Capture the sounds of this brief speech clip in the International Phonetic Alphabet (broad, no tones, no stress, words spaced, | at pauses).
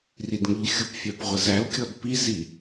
ridŋəʎxʲupfʲæp ʁʷəzælkʲɔd pizi